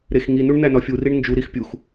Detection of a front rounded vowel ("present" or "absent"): absent